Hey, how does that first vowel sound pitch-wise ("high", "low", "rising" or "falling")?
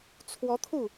rising